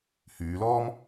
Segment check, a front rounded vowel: present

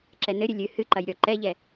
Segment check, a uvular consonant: absent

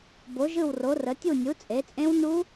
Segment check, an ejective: present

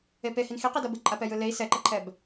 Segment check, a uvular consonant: present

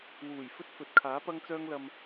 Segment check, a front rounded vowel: present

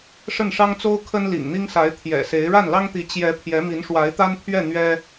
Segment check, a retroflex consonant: present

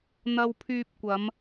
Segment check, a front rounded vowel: present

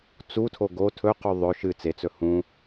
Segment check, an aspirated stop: present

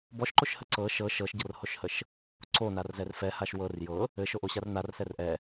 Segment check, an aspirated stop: absent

